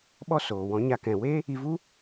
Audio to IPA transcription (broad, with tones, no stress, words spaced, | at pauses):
ɓɔ˦soː˨ wɔ̃˨˦ɲa˧ kɛ̃˨we˦ | i˧vu˦